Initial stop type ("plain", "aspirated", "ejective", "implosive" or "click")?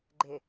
click